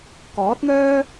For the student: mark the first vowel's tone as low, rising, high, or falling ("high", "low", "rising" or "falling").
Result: rising